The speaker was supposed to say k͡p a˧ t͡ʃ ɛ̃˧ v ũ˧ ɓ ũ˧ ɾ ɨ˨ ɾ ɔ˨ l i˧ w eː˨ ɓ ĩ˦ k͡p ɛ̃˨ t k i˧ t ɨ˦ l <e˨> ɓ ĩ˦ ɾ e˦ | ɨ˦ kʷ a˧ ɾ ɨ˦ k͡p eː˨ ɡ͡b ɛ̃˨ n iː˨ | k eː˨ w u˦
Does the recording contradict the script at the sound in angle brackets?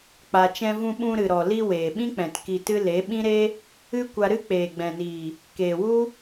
yes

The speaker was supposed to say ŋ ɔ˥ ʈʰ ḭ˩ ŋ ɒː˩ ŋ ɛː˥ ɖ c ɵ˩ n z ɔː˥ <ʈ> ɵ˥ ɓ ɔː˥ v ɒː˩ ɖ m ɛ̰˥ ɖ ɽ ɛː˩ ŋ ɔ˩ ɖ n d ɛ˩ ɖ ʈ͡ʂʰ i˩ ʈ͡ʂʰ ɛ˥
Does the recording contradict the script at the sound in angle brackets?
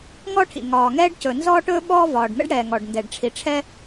no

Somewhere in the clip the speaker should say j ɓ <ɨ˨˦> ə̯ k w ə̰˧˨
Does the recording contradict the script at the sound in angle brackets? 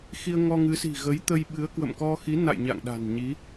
no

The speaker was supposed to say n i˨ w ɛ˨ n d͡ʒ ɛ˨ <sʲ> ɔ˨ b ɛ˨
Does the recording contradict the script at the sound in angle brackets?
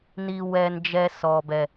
yes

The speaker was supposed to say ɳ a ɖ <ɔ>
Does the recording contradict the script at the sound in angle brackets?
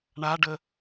yes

